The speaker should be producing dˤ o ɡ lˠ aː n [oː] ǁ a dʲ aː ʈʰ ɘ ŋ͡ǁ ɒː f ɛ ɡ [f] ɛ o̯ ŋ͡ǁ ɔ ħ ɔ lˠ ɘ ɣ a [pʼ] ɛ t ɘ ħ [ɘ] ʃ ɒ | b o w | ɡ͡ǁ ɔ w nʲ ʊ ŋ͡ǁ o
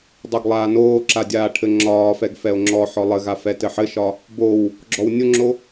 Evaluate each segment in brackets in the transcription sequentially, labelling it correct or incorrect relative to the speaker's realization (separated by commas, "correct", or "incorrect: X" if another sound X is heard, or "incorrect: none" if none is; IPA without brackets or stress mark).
correct, correct, incorrect: f, correct